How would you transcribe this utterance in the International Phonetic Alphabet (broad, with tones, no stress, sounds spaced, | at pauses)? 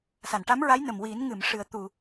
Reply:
s a˨˩˨ n ʈ a˧˥ m ɹ a˧˥ j n ə˨˩ m w i˨˩˦ n ŋ ɨ˨˩˨ m ʂ ɨ˨˩˨ ə̯ t̪ u˨˩˨